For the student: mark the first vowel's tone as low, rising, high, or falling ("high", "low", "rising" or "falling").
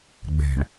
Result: low